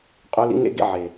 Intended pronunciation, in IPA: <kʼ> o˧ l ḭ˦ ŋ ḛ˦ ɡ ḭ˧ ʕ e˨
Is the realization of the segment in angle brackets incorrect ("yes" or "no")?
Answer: yes